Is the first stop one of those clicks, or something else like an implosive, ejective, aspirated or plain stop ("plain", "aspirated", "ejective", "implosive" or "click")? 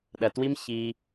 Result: implosive